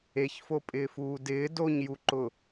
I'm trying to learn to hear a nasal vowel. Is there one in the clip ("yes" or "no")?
no